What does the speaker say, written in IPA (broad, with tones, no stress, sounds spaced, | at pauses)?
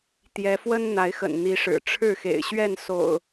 t̪ j ɛ˨˦ f w ə˦ n n̪ a˨˦ ɪ̯ x ə̰˨˩ n n̪ i˨˦ ʂ ɻ̩˨˩ ʈ͡ʂʰ ɻ̩˥˨ x ḛ˨˩ ɪ̯ ɕ ɥ ɛ˥˨ n s o̰˨˩ ʊ̯